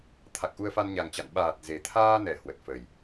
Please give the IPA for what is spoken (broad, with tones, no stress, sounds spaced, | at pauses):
t̪ʰ a˨˩ k̚ ʔ u˧ ə̯ f a˧ n ɲ a˨˩ ŋ t͡ɕ a̰˧˨ n ɓ aː˨˩ t̚ z e˨˩ t̪ʰ aː˧ n ɛ˧˩ h w ə˨˩ t̚ f ə˨˩ j